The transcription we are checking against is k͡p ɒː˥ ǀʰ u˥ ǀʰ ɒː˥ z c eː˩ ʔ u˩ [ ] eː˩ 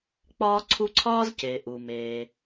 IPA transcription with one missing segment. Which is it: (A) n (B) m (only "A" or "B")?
B